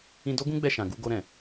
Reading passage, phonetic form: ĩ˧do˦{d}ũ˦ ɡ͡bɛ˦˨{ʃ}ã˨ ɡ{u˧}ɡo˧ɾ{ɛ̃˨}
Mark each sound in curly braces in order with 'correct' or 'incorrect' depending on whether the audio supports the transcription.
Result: incorrect, correct, correct, correct

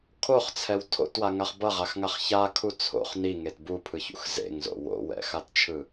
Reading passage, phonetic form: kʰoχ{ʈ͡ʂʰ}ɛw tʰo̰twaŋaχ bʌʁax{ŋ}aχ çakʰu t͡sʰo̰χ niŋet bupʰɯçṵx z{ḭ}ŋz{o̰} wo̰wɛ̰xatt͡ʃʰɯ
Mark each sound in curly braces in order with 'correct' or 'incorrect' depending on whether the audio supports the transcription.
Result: incorrect, correct, incorrect, correct

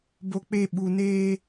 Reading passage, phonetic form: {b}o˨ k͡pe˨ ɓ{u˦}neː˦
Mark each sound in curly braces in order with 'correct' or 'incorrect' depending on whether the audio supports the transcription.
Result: correct, incorrect

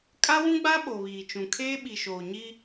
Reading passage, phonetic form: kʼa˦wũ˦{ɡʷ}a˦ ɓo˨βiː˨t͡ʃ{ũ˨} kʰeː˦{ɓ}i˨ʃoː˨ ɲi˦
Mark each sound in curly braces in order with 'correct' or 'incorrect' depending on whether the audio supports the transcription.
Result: incorrect, correct, correct

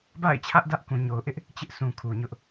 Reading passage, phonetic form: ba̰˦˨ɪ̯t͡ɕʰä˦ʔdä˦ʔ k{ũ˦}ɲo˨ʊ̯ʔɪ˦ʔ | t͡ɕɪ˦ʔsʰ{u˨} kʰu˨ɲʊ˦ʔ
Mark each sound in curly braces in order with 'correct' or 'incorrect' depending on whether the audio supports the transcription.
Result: incorrect, incorrect

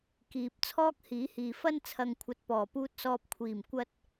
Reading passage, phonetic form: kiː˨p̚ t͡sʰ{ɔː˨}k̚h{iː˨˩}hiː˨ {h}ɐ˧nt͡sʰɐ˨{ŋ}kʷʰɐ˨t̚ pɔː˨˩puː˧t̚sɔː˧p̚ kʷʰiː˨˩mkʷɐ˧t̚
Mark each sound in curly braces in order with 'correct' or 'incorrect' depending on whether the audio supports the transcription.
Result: incorrect, incorrect, incorrect, correct

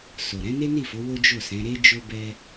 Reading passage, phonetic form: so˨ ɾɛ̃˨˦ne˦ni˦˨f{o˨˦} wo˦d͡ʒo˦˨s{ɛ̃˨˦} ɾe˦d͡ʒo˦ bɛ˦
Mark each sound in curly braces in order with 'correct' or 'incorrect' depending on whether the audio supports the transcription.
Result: correct, correct

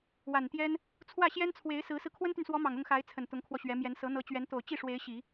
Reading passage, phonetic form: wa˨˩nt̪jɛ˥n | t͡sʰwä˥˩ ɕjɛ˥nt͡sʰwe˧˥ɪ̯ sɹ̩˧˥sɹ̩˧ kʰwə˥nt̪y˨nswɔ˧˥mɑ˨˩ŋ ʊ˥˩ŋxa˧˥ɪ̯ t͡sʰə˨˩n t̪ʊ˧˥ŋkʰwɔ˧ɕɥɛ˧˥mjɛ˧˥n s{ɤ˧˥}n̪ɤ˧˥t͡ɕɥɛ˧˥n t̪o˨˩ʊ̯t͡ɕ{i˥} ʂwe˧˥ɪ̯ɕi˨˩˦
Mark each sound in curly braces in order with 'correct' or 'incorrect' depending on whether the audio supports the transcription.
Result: correct, incorrect

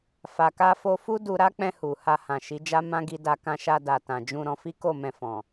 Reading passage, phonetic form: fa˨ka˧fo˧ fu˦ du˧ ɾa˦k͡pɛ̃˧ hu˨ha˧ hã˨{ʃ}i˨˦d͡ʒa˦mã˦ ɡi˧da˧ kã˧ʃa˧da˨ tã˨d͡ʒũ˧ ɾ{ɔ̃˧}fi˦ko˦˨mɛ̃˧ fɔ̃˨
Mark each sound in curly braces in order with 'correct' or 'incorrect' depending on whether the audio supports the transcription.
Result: correct, correct

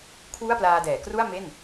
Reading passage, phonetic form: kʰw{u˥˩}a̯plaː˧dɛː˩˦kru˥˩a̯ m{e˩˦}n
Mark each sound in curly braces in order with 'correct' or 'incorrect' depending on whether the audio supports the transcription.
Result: correct, incorrect

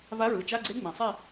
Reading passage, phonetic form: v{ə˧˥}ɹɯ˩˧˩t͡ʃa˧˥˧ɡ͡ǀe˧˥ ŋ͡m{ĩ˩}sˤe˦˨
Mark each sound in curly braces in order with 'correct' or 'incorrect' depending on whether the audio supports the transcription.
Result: incorrect, correct

